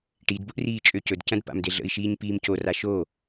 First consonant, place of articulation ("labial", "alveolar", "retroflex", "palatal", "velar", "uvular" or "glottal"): retroflex